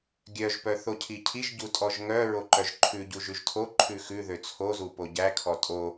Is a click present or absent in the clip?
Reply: present